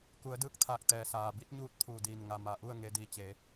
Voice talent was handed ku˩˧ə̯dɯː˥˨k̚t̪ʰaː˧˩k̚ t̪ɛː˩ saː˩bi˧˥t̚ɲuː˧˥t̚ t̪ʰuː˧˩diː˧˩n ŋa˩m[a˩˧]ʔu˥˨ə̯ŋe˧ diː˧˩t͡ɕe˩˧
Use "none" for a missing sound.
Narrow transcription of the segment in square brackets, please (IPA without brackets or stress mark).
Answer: a˩˧